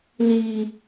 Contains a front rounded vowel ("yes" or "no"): no